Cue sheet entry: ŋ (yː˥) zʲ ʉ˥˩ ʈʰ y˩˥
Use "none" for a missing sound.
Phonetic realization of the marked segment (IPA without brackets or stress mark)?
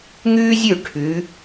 yː˥